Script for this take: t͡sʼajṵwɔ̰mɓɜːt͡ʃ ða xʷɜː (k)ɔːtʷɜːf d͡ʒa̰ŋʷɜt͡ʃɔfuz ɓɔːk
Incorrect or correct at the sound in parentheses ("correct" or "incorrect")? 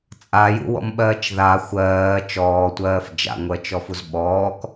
incorrect